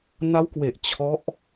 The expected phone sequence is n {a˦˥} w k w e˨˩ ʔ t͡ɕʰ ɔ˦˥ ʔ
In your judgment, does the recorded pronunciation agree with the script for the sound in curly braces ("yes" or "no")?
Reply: yes